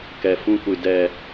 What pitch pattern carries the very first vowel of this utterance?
low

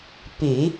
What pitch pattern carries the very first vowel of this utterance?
low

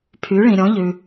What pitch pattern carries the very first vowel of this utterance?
rising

